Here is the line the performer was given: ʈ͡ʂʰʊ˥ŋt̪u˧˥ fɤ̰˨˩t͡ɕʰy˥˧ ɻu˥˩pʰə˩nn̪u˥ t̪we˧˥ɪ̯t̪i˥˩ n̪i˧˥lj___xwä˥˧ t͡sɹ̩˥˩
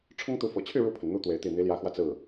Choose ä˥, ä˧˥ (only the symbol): ä˧˥